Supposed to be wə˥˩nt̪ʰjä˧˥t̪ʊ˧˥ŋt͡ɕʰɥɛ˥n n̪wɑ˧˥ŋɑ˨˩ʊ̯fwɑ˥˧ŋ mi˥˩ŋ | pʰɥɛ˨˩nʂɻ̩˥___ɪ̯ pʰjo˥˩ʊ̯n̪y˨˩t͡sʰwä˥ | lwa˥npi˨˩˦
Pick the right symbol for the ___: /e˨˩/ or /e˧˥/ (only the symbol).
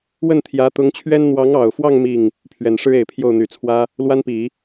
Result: e˨˩